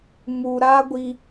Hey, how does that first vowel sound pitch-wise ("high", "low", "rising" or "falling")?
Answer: low